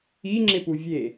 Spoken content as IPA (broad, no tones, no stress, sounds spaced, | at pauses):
i ŋ͡ǁ ɪ p u vʲ e